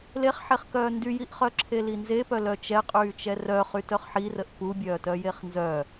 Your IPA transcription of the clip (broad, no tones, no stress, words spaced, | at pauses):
leχħeχkœː ndyjiʔχœ ǁʰelinzepœ lœt͡ʃɛ qʼyːt͡ʃɛrœχy tœχħirəʔ pubʲœː tœjeχnzœ